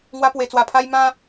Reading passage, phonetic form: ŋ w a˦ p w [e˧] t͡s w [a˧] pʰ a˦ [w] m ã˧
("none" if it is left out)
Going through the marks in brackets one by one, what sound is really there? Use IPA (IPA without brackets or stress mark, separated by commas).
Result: e˧, a˧, j